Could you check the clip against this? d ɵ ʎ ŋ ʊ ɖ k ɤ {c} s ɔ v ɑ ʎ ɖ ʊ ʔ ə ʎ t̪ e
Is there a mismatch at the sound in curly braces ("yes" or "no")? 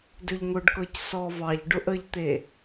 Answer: no